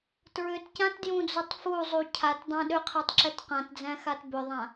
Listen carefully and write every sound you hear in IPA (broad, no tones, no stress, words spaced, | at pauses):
tɹʏtcãtdjũd͡zutˤ fuzˤu cʰatdˤã ɗʏqʰɛtˤǁɛt qãtd͡zæ̃xat bʏðˤã